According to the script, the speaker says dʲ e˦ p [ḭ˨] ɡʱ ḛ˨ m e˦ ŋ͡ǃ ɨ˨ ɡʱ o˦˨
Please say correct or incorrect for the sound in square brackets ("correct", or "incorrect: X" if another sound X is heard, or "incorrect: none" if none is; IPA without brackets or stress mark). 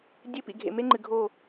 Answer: correct